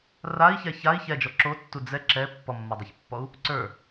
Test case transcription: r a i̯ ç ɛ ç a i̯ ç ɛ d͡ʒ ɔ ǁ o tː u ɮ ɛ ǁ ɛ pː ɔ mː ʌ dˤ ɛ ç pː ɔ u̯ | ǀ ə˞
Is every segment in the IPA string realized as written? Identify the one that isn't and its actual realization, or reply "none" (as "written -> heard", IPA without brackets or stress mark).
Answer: ɮ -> d͡z